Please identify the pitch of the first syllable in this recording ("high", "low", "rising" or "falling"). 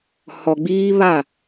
low